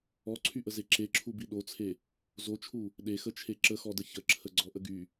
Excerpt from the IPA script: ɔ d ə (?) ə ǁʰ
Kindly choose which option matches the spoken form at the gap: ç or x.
ç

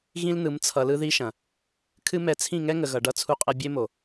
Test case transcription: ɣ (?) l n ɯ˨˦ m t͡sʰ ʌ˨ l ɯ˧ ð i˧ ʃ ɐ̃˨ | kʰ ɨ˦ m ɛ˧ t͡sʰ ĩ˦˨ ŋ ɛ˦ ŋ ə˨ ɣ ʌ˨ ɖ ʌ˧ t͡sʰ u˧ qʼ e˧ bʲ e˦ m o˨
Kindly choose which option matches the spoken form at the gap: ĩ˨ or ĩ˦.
ĩ˦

